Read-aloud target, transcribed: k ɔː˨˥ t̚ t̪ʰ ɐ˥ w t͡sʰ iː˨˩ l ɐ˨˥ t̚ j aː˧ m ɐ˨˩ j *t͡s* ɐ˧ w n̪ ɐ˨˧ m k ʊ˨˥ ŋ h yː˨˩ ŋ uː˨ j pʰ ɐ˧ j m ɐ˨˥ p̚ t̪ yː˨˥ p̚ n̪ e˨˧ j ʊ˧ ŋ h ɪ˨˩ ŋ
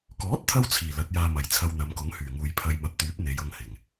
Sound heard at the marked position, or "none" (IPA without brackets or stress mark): t͡sʰ